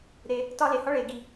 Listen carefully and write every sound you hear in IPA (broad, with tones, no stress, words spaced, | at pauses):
ɾe˩ | tɒ˥ le˩hɒ˥ɭeː˩ ɡi˩